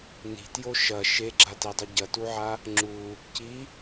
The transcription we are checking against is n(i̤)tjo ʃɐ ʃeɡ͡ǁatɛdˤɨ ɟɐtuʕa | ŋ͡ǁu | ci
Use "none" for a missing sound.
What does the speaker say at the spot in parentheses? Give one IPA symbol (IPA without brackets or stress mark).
i̤